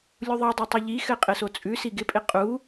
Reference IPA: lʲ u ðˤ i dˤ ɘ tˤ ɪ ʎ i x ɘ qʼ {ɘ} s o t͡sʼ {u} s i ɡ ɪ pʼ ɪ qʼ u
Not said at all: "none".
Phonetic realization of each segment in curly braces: ɘ, ʉ

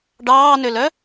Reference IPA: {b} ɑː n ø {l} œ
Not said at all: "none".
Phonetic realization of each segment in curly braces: ɖ, l

